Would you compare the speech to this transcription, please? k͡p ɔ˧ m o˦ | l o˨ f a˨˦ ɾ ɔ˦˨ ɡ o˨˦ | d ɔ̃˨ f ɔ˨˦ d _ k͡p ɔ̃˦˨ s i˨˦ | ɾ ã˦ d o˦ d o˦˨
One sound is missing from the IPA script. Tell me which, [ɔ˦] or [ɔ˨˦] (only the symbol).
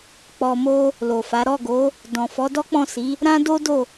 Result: ɔ˦